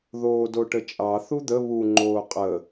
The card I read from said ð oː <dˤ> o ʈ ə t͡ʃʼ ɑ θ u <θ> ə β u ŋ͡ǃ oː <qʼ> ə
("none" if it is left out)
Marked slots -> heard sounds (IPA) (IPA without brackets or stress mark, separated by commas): d, d̪, qʼ